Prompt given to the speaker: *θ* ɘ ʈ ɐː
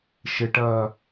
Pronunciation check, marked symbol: incorrect: ʃ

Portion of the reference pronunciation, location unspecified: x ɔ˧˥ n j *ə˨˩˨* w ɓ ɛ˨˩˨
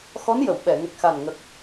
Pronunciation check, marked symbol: correct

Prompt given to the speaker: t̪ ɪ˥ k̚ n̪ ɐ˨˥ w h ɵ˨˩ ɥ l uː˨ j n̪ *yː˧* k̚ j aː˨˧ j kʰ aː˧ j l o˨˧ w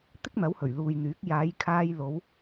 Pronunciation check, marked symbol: incorrect: yː˨˥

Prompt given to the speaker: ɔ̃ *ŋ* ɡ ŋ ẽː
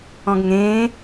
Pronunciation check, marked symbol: incorrect: none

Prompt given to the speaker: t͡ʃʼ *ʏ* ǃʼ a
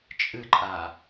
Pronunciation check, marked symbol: incorrect: ɨ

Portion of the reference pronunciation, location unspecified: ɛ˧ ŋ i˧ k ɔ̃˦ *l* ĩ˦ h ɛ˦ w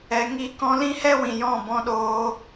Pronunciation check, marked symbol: correct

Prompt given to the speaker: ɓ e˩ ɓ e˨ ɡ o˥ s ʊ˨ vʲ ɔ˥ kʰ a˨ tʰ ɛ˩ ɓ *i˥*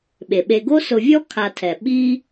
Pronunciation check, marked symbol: correct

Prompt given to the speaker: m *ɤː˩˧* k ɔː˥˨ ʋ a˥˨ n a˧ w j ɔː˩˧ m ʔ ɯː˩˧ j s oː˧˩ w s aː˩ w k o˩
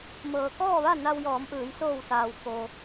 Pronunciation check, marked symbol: correct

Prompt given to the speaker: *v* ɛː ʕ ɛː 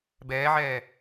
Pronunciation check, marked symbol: incorrect: b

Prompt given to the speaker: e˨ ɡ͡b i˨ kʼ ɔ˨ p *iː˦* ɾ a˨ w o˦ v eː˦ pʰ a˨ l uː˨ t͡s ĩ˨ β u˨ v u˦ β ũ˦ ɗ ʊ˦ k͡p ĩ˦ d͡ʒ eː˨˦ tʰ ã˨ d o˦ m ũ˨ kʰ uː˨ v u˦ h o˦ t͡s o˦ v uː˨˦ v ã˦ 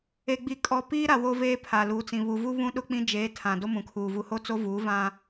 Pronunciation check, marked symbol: correct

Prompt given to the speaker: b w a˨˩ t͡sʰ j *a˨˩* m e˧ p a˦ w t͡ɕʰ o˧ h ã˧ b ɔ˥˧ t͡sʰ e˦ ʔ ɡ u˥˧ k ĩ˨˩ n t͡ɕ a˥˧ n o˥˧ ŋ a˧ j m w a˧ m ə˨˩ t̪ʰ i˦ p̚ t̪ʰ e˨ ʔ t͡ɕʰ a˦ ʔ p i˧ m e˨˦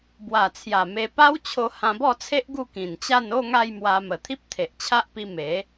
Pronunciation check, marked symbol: correct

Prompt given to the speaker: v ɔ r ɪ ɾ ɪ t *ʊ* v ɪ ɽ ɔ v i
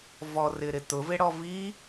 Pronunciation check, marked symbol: correct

